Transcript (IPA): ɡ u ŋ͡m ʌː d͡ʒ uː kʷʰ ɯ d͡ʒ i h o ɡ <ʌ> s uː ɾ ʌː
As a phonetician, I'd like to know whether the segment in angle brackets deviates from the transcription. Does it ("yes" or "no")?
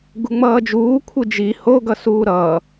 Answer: no